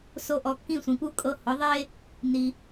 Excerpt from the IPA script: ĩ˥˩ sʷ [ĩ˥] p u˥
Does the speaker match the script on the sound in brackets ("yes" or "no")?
no